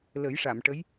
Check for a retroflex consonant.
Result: present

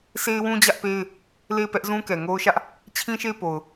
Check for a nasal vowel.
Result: present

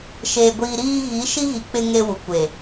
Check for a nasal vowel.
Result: absent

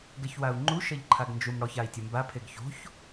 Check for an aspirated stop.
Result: present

